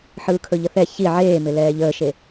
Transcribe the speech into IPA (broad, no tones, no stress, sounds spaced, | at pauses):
ħ ɯː kʰ ɵ ʎ ə θ ɛ ç i ʕ eː m ɪ l ɛː ʎ əː ʃ e